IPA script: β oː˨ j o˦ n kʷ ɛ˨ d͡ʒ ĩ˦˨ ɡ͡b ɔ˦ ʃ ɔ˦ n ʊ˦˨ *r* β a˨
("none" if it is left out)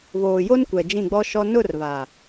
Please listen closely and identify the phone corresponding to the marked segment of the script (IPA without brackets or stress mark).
r